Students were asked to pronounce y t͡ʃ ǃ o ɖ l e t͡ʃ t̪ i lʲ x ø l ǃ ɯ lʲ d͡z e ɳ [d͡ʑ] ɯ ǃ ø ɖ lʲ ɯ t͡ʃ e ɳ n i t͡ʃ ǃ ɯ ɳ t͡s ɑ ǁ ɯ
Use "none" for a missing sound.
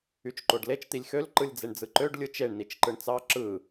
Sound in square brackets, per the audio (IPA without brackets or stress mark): d͡z